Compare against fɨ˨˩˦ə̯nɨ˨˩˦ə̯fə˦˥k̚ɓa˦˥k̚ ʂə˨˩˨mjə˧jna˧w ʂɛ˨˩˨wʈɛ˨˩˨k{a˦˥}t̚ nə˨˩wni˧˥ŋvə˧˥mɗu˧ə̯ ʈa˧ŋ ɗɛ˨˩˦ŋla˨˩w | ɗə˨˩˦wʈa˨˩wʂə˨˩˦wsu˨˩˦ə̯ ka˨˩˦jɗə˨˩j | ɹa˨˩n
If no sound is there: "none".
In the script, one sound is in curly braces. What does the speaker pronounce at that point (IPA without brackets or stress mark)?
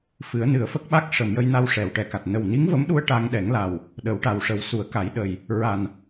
a˨˩